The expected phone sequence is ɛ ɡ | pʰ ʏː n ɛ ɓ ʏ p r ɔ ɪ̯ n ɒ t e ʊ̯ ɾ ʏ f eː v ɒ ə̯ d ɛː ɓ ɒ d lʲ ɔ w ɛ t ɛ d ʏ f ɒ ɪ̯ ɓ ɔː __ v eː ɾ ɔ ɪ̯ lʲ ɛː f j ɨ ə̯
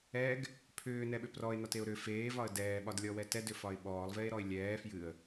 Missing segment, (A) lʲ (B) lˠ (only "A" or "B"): B